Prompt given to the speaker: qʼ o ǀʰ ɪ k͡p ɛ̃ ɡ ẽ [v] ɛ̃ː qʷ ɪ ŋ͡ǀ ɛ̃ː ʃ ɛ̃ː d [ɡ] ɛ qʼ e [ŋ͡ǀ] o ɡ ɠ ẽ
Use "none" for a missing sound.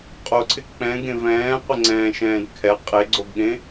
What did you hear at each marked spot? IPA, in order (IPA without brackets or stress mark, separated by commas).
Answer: v, kʰ, ɡ͡ǀ